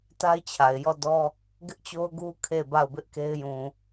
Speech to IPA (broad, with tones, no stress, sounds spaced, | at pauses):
t a˦ ɪ̯ t͡ɕʰ a˨ ɪ̯ j ɔ˦˨ d ɔ˦ | ɡ ɪ˦ ʔ t͡ɕ o˦ ʊ̯ ɡ u˦ kʰ e˦˨ b a˦˨ ʊ̯ b ɪ˦ ʔ k e˦ ɪ̯ j ũ˨